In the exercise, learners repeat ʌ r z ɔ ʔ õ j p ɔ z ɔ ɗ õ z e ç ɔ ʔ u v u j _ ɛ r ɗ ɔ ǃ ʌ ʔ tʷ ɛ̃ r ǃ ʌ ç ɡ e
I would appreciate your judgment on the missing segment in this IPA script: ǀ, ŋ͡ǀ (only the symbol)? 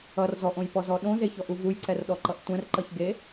ǀ